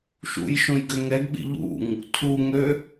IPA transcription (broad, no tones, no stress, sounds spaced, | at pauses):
ʃ ṵ j ʃ õ j ɡ ø ŋ ɛ ɡ ɓ ḭ ʎ ṵ ŋ | tʰ u ŋ ø